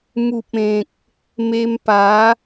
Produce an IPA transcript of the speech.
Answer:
m u˨ p̚ ẽ˨ k̚ | m e˧ m p a˨˦

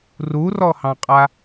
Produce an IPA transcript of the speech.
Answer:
r u r ɔ h ɑ̃ qʼ a

